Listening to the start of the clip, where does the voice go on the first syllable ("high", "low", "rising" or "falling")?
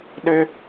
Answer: high